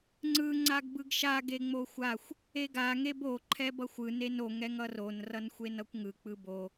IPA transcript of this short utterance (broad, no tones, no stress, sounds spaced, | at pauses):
ŋ͡ǀ ɯ ŋ͡ǀ a ɡ b ɯ ɡ ʃ a ɡ e ŋ͡m o xʷ a xʷ | e ɡ a ŋ e b o ǃʰ ɛ b ʌ xʷ ɯ n e n o ŋ ɛ ŋ ʌ r o n r ʌ n xʷ e n ʌ kʷ ŋ ɯ k͡p ɯ b o